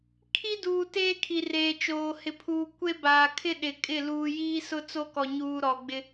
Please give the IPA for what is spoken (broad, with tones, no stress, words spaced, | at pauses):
kʰi˦duː˨ teː˦kʰi˨reː˨t͡ʃoː˨ hɪ˨pʰuː˨kʷe˦ baː˨kʰɪ˦ ɗɪ˨kʼɪ˦˨ luː˨jiː˦sʊ˦t͡so˦ kɔ˨ɲuː˨ ɾɔ˨ɡ͡bɪ˦